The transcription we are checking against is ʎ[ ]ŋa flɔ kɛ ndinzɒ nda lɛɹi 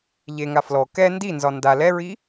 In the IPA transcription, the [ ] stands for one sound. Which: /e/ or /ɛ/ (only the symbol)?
e